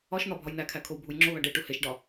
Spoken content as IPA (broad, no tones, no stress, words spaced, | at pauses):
ɒʃn̪ɒ bʱɒjnækʰæ kʰowbʱujŋ͡ǁoβæɖ eʈu heʃɖɒ